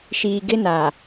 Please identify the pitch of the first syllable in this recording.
low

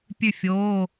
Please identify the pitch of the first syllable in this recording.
falling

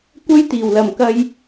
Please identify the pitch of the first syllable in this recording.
high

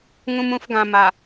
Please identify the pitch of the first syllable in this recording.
high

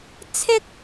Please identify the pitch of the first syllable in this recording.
high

